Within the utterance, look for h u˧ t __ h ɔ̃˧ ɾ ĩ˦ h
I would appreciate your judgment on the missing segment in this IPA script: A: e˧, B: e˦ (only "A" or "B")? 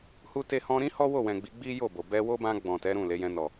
A